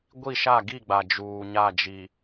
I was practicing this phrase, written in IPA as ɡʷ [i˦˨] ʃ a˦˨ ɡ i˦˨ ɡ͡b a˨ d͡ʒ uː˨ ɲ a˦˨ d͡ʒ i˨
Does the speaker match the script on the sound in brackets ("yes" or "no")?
yes